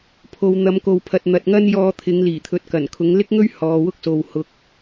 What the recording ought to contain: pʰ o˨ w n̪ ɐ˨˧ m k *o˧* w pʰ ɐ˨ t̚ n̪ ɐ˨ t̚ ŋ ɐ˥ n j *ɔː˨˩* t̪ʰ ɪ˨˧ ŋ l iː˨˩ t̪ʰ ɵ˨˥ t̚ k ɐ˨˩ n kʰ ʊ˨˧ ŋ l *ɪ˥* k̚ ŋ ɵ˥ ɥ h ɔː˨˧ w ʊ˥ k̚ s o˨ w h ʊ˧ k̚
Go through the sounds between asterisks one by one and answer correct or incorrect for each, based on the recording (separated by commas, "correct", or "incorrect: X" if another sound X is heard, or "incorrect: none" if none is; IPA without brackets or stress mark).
incorrect: o˨, incorrect: ɔː˧, correct